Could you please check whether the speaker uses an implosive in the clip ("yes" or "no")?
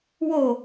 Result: no